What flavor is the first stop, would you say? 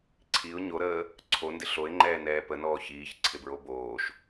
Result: click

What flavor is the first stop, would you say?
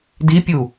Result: plain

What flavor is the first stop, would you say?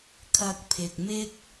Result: aspirated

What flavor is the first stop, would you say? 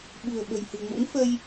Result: implosive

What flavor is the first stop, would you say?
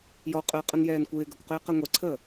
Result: ejective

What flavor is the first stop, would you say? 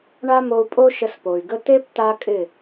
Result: ejective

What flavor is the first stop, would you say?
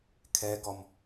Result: aspirated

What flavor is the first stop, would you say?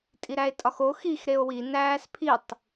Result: ejective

